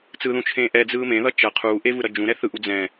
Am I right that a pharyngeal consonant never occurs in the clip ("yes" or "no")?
yes